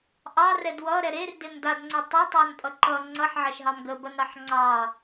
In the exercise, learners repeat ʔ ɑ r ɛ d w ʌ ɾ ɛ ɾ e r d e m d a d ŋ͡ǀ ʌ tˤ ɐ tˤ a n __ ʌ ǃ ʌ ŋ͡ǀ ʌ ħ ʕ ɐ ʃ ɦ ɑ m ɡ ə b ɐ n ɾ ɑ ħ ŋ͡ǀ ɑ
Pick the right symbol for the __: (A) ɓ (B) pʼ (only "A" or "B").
B